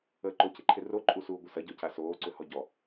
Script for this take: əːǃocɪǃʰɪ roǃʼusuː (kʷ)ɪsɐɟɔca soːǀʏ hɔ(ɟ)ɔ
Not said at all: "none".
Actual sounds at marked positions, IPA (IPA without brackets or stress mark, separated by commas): ɡʷ, ɟ